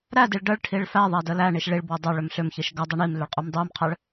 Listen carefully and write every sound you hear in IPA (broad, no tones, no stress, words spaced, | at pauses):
ɾæ diɭɖəɭʈʰiɭ fæðˤæ dəlæɳiʃ ɭiɭbwə dˤʏ ɭʏmɬʏmçiʃ ɡɐ dˤiɳimlʏɭ qʼumdˤumqʰæɭ